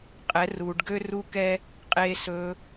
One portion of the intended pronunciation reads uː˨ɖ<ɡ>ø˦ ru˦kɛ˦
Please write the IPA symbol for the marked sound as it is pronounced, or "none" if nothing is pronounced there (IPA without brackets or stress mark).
ɡ